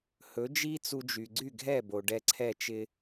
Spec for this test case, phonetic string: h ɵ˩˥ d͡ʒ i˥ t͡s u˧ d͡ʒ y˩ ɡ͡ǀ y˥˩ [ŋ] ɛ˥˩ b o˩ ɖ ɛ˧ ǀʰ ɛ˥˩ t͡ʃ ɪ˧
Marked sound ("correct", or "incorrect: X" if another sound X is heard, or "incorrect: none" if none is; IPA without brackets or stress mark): incorrect: ɡʱ